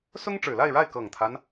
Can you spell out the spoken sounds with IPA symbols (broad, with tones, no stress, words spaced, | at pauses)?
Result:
sʊ˥ŋʈ͡ʂɻ̩˨˩la˥˧ɪ̯ɻa˥˩ɪ̯ kɤ˨˩ŋt̪ʰa˦n